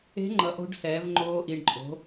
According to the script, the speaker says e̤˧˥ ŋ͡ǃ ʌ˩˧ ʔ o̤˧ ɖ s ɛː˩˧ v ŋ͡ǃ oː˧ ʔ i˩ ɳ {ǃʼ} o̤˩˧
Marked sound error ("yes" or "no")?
no